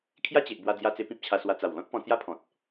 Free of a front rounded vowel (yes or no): yes